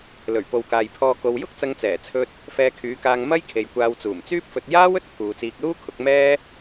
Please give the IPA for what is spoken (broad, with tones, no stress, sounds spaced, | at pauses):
l ɵ˨˩ ɥ p o˨ w k aː˨ j pʰ ɔː˧ k o˨ w j ʊ˥ k̚ t͡s ɐ˧ ŋ t͡s ɛː˨˩ t͡sʰ ɵ˧ t̚ | f ɛː˧ kʰ yː˨˧ k aː˧ ŋ m ɐ˥ j kʰ e˨ j kʷ aː˧ w t͡s uː˨˩ m t͡s yː˥ p̚ f ɵ˧ t̚ j aː˥ w ɵ˥ t̚ pʰ uː˨ t͡s iː˧ k̚ l uː˥ kʰ ʊ˨˥ k̚ m ɛː˥